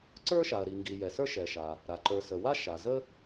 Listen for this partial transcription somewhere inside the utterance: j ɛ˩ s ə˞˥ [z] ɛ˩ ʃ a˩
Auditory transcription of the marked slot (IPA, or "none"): ʃ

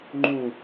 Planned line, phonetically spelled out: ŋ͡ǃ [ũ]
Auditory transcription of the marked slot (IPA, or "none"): ũ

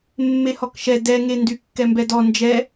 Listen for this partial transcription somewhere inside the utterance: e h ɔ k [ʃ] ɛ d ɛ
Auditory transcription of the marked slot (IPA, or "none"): ʃ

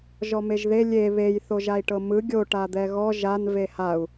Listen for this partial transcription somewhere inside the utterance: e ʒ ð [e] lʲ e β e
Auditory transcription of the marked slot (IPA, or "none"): e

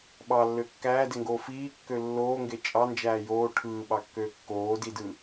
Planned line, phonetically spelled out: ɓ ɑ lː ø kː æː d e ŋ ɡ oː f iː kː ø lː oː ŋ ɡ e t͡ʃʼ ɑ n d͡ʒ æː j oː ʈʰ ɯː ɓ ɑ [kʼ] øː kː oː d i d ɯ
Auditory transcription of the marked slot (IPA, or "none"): kː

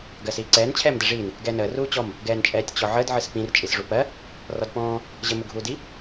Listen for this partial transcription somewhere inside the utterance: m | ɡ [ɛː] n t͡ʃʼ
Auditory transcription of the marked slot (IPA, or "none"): ɛː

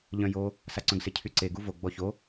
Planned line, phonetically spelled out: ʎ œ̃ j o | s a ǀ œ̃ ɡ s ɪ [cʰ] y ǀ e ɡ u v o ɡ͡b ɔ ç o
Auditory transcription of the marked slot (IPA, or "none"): cʰ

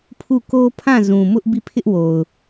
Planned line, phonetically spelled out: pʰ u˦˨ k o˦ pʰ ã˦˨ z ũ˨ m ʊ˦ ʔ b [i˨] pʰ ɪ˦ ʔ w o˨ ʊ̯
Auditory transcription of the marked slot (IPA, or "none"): i˦˨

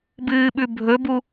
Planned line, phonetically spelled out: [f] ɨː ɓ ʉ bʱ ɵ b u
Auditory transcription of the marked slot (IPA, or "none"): b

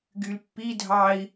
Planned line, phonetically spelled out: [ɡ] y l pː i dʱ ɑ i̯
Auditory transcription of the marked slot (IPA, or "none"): ɡ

